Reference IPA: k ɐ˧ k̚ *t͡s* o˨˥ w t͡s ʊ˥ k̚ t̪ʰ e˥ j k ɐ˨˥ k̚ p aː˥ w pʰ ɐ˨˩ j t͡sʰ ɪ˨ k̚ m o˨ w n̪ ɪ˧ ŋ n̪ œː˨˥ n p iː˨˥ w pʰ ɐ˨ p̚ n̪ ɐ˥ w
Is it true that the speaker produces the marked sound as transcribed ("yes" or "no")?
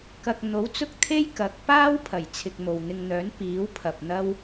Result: no